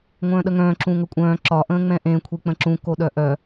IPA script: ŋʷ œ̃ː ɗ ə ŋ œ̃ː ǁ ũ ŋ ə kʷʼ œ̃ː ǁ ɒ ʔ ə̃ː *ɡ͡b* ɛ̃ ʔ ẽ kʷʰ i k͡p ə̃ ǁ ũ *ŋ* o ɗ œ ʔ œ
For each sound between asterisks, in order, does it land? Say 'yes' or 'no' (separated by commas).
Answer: no, no